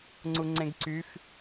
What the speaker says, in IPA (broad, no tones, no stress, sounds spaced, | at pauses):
ŋ͡ǀ u ŋ͡ǀ ẽ ɡ ǀ y f